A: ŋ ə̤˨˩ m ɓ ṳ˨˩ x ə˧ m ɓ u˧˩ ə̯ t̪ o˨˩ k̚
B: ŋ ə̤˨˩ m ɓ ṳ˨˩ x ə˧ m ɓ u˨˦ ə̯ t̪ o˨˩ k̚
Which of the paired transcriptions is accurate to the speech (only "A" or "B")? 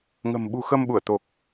A